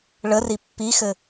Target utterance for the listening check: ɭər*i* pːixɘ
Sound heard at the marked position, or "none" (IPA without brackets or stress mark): i